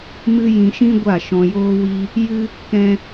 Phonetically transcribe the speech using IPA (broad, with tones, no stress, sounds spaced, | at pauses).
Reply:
m ɨ˦ j ĩ˧ ʃ ĩ˦ ɡʷ a˦˨ ʃ ɔ̃˧ j oː˦ w i˦ | j ɨ˦ | k ɛ̃˦